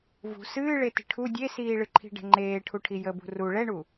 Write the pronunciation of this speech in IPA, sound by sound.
v ṳ s ɨː ɭ e t i̤ ʈʰ u dʲ e s iː ɭ ɨ ǃʰ i̤ ɖ ɛ̤ ŋ͡ǃ eː ʈʰ u ʈʰ i j ə b ṳ r u ɭ ɛ ɳ u

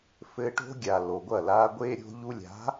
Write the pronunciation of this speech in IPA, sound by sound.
f ɘ˧ ʈ o̤˦ ɡʲ a˨ l o˨ ɡʷ ɐ˦˨ l a˦ ɡʷ e˦ ɾʲ o̤˦ ʎ u˧ lʲ a̤˨˦

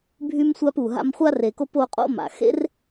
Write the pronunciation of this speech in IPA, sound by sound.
bʱ y˥ m sʷ a˥ p u˨ ɦ a̰˦ m χʷ a˥ r e˨ k o˥ p o˦ qʼ o̰˥ m a̰˨ x ḛ˥ r

